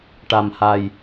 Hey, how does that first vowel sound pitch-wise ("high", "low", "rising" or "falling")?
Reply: low